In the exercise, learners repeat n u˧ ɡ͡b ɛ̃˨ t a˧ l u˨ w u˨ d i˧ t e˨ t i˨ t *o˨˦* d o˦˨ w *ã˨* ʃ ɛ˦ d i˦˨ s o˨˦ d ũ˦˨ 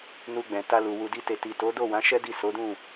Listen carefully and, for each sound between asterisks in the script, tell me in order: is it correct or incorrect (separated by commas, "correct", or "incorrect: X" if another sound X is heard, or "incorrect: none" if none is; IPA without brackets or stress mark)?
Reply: correct, incorrect: ã˨˦